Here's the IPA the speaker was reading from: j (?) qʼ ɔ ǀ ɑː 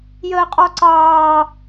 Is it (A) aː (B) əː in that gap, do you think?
B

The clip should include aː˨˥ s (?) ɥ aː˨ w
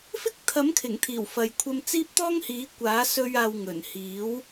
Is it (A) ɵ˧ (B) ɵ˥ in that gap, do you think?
A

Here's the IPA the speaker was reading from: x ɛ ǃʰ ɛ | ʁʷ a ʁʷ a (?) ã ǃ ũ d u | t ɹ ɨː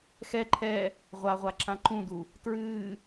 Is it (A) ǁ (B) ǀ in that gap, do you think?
A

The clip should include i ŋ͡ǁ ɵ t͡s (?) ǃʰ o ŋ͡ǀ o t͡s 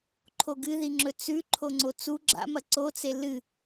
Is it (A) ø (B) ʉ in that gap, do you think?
B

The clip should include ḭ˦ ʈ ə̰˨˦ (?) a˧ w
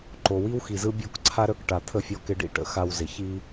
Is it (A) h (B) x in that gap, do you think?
B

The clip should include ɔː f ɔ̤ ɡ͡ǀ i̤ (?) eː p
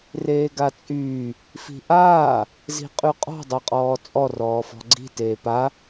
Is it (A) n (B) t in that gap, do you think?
B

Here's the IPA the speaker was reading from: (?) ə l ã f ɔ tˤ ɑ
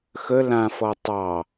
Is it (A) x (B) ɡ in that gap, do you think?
A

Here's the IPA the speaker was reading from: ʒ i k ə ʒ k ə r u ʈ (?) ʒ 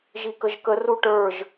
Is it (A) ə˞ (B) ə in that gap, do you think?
A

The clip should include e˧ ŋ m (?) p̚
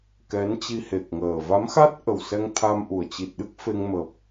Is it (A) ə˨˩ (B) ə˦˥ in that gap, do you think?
A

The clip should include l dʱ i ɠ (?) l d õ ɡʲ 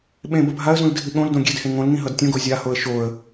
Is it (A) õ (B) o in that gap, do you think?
A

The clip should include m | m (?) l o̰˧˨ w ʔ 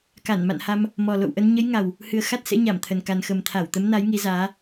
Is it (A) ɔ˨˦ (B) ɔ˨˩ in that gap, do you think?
B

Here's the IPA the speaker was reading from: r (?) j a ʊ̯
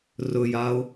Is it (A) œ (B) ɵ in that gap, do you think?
B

